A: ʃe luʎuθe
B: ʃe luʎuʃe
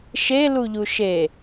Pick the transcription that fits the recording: B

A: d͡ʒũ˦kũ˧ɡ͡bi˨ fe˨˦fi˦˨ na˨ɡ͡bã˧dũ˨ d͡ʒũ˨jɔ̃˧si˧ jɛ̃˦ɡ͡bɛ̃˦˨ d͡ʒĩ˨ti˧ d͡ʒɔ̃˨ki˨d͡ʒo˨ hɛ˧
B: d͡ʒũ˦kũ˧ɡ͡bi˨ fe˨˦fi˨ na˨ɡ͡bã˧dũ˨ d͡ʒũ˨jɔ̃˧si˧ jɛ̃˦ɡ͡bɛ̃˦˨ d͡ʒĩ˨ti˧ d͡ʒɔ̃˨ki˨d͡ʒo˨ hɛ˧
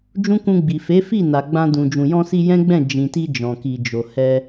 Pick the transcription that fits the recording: A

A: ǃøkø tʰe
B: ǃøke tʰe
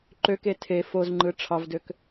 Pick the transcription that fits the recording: B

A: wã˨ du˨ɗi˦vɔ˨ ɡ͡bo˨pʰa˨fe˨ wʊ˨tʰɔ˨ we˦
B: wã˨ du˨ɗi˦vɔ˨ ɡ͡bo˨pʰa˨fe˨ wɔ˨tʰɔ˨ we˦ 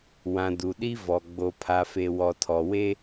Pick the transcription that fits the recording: B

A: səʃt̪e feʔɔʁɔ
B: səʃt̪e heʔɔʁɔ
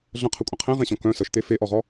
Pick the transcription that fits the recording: A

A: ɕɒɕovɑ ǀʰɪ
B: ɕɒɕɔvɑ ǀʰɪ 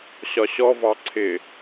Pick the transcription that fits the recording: B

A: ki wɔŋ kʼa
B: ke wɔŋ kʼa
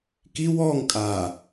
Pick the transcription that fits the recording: A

